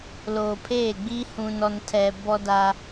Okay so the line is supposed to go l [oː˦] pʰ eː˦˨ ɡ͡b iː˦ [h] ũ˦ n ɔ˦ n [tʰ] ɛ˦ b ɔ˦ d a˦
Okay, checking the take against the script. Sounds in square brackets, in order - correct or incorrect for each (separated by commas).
incorrect, correct, correct